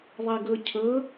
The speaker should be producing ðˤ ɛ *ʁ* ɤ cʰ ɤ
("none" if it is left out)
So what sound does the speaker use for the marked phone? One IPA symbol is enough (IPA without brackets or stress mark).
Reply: ɡ